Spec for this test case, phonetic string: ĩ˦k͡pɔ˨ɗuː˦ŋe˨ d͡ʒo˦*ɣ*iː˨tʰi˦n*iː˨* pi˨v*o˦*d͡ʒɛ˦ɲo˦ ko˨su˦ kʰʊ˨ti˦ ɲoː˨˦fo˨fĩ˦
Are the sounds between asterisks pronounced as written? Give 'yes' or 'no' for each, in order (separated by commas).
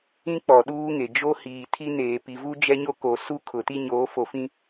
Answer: no, no, no